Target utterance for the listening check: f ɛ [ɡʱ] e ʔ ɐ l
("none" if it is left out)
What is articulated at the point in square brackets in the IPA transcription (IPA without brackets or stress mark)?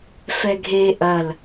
ɡʱ